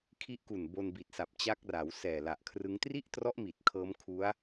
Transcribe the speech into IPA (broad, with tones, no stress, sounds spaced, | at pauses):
kʰ i˦˥ ʔ k u˨˩ n b o˧ n b i˨˩ t̚ s a˨˩ p̚ t͡ɕ a˦˥ k̚ r a˩˦ w s ɛː˨˩ l a˨˩ ʔ kʰ r ɯ˦˥ ŋ t r i˥˩ ʔ t r ɔ˦˥ ʔ m i˨˩ t̚ kʰ ɤː˦˥ m kʰ u˦˥ a̯